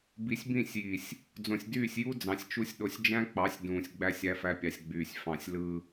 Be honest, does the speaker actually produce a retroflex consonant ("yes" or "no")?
no